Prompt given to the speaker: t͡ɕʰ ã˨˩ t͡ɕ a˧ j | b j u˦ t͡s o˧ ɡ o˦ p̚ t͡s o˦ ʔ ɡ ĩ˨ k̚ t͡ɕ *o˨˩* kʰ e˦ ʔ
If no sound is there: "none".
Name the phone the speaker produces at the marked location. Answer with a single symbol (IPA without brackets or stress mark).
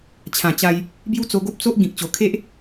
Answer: o˨˩